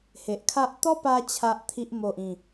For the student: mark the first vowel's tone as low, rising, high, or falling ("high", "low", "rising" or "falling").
low